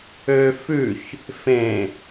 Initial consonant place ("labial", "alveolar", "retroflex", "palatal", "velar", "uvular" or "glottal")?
labial